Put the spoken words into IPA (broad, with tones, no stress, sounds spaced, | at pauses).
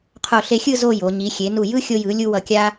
qʰ o˧˩ ɬ e˧ xʲ ɯ˥˧ z o˥˧ j o˩˧ ɲ i˩˧ xʲ e˩˧ n u˧˩ j ɯ˥ xʲ o˧ j ɯ˩˧ lʲ u˧ w ʌ˧ kʲ a˥